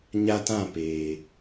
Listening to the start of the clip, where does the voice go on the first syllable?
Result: high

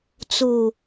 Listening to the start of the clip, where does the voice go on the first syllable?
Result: low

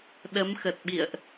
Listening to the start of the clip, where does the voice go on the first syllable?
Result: rising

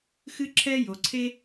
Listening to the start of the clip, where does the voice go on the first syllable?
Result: high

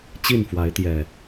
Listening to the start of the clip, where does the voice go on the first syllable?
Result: falling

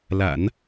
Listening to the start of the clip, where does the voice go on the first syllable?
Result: low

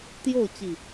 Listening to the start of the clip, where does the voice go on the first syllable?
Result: falling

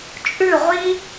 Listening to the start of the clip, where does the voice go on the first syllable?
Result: falling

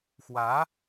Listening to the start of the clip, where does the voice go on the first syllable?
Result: rising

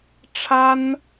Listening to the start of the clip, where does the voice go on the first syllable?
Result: high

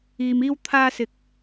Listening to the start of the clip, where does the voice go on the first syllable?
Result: low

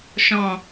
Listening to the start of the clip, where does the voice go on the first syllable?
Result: low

